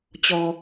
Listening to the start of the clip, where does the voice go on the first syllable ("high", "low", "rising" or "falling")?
low